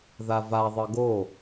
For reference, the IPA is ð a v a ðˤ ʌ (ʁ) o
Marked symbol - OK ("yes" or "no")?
no